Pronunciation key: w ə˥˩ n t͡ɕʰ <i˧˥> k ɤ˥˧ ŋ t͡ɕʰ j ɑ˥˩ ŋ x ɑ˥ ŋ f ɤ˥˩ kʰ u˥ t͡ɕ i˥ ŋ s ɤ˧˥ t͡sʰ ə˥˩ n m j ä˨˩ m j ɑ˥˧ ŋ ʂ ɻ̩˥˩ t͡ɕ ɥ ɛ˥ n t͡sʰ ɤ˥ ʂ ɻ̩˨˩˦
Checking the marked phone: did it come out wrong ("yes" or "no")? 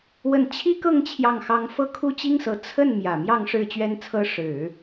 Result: yes